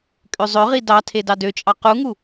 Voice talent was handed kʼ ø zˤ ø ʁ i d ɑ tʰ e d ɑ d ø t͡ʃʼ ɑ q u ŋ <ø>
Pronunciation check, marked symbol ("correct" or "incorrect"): incorrect